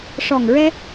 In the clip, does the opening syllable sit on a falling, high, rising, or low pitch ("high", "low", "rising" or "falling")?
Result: low